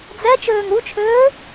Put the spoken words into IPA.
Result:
d͡z ɛ t͡ʃ øː ŋ ɾ u t͡ʃʰ øː

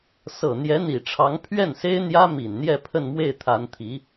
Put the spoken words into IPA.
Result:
s ɤ˨˩ n̪ j ɛ˧˥ n̪ i˨˩ ʈ͡ʂʰ ɑ˧˥ ŋ pʰ ɥ ɛ˥˩ n s e˥ ɪ̯ n̪ j ä˥ m i˨˩ n n̪ j ɛ˥˧ pʰ ə˥˧ n m w e˥˩ ɪ̯ t̪ʰ a˧˥ n t̪ʰ i˧˥

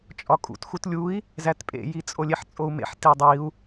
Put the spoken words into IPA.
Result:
t͡ʃʼ ɒ kʼ ṵ t x u t lʲ u i̯ | z æ t pʼ ḛ j i t͡sʼ o lʲ e ħ t͡sʼ o u̯ m ḛ ħ t i dˤ i u̯

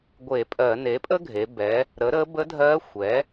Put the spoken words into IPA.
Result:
ɡʷ e˧˩˧ pʼ ɜ˧˩˧ n e˩˥ pʼ ə˥ ɡʱ e˩˧ b ɛ˩˧ | ɾ ə˩˥ ɾ ə˧˥ b ə˧˥ dʱ ɜ˧˥ xʷ ɛ˩˥

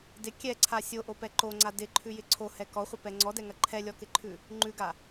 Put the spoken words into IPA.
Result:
d ɪ kʲ ɛ ǀʰ a sʲ o ʔ o p ɛ ǃ o ŋ͡ǀ a d ɪ ǃʰ ʉ j ɪ ǀʰ o h ɛ k ɔ χʷ ɪ p ɛ ŋ͡ǀ ɔ d ɛ ŋ ɐ ǃʰ ɛ lʲ ɔ k ɪ ǃʰ ʉ | ŋ͡ǃ ʉ ɡ a

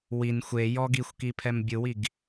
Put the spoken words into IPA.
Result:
w i n xʷ e j ɔ ɡ i xʷ k i pʰ ɛ m bʲ ɯ w i ɡ

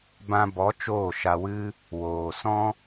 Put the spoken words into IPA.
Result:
b ã˧ b ɔ˨˦ t͡ʃ oː˦˨ ʃ a˧ w ɨ˦ | w oː˨ s ɔ̃˦

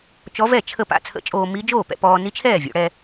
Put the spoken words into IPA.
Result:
t͡ʃ ɔ˧˥ v ɛ˥˩ t͡ʃʰ ə˥˩ p a̰˧ t͡sʰ ə̰˧˥ t͡ʃʼ oː˧ m i˧˥ d͡ʒ oː˥˩ p ɛ̰˧ p ɔː˧ n i˧˥ t͡ʃʰ ɛː˥˩ vʲ o̰˩˧ ɽ ɛ˧

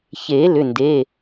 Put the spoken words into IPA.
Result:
ç e˨˩˦ l ʏ˩˧˩ n d e˩˧˩

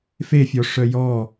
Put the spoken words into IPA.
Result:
f e fʲ ɔ ʂ œ j ɔ

